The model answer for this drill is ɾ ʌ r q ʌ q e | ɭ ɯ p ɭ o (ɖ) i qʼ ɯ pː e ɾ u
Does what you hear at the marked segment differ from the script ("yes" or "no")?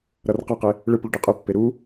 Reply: no